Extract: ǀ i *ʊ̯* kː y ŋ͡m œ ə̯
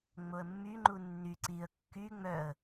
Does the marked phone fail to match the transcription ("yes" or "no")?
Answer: yes